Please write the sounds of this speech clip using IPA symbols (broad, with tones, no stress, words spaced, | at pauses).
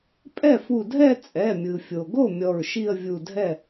pʼɛ˥˩fu˧˩dʱɛ˥˧ t͡sʼɛ˩˧˩mʲɯ˩fʲo˩ɡo˥˩ mʲɔ˧˩ɹʃi˥˧ə̯ vʲu˧˩dʱɛ˥˩